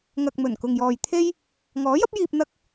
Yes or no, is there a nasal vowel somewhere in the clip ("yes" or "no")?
no